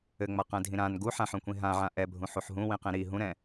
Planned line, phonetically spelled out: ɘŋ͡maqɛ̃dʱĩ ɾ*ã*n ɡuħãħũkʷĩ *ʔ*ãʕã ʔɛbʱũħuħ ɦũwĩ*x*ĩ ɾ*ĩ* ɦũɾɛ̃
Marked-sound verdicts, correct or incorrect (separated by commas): correct, incorrect, incorrect, incorrect